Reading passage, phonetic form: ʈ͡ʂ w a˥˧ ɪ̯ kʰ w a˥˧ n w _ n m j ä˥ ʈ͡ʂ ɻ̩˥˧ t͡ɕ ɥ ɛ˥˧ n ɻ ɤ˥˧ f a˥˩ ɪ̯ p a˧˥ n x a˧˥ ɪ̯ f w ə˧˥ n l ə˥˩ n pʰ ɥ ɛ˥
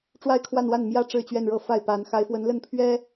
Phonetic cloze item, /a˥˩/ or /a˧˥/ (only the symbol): a˥˩